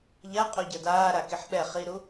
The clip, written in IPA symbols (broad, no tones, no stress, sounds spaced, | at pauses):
ʎ a qʼ o ɟ ʌ d aː ɾ a k i ħ ɓ ɛ χ i ɾ u